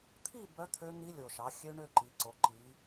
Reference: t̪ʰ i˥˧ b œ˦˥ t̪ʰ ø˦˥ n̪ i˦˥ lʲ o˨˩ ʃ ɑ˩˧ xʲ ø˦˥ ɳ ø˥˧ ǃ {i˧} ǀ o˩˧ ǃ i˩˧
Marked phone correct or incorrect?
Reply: incorrect